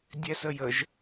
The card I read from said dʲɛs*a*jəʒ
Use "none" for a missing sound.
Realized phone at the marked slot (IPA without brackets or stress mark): ə